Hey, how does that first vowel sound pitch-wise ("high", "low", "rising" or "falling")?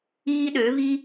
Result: high